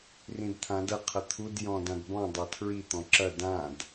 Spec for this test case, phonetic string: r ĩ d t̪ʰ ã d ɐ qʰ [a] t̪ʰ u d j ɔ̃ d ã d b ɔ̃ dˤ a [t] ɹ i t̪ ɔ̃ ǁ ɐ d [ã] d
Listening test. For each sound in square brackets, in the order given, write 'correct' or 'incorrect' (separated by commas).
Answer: incorrect, incorrect, correct